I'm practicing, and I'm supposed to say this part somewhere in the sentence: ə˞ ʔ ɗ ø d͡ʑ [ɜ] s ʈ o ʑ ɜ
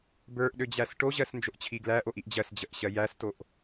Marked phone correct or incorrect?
incorrect: æ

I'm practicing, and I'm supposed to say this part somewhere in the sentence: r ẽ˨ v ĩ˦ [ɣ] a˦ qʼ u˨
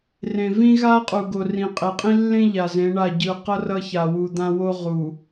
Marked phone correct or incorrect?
correct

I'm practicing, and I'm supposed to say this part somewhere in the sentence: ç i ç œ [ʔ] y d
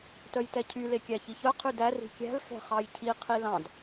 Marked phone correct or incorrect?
incorrect: qʰ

